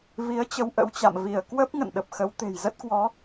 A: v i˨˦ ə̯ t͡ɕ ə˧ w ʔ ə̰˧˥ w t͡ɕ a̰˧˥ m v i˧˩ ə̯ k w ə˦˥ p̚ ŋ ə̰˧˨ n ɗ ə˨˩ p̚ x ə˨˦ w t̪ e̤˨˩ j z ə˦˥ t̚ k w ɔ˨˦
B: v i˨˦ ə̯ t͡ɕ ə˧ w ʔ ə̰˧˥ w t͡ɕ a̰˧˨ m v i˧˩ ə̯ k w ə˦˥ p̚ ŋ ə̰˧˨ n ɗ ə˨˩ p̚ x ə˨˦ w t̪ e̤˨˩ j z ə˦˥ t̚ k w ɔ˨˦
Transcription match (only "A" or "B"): B